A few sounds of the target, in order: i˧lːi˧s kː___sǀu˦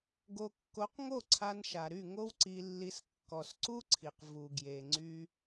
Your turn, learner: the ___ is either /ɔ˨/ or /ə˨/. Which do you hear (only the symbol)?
ɔ˨